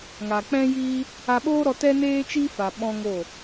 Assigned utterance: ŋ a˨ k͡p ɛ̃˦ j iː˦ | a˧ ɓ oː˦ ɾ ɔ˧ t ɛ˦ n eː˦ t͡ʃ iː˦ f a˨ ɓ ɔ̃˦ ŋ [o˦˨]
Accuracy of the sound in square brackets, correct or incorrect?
correct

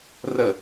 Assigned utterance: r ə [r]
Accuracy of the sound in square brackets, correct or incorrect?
incorrect: none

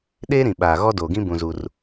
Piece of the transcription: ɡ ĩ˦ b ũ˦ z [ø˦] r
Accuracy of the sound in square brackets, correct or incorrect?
incorrect: u˦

